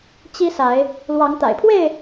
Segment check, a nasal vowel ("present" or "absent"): absent